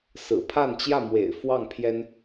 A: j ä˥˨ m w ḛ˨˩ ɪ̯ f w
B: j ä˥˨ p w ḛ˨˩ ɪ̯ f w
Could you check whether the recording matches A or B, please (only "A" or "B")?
A